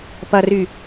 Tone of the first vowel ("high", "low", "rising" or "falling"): low